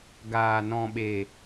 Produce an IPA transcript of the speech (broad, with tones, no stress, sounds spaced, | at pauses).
ɡ aː˨ n ɔ̃˨ ɓ e˨